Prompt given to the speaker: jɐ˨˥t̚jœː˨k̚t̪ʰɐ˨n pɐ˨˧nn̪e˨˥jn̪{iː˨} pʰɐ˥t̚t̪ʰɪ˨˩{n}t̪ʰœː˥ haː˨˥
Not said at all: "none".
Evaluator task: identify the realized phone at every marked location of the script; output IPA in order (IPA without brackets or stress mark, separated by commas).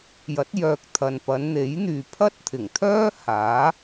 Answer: yː˨, ŋ